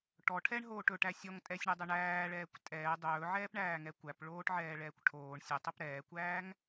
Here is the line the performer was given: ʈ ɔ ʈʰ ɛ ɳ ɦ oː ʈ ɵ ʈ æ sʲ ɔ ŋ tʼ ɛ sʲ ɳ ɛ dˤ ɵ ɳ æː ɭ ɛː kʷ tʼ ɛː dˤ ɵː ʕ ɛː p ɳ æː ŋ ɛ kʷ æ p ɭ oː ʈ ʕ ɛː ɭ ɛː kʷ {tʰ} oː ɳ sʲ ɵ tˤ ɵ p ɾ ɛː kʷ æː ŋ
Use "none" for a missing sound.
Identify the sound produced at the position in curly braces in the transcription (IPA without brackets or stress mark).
ʈʰ